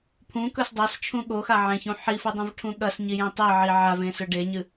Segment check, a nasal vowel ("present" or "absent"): present